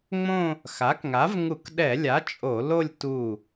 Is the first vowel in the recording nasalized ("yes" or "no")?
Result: yes